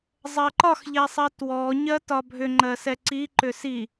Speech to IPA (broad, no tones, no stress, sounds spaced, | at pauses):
zˤ ɜ ǃ ɒ x ʎ ɛ sˤ ɜ t w ɔ ɲ ɜ t ɒ bʱ ʏ ŋ͡ǃ ɜ s ɛ ǀ i ǃ ʏ s i